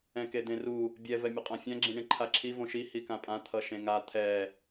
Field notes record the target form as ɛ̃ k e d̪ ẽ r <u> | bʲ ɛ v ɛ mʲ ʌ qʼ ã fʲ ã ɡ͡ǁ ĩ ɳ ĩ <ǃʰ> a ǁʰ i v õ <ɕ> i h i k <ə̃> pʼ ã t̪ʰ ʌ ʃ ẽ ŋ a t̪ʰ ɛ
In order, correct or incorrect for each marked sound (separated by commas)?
correct, correct, incorrect, incorrect